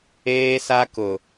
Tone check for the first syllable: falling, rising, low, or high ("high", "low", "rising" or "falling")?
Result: high